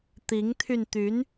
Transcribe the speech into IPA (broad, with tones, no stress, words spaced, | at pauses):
t̪i˧˥ŋt̪ʰy˧nt̪y˧˥n